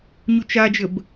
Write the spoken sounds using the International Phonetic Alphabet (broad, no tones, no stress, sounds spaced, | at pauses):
ɲ u t͡ʃ a d͡ʒ ə b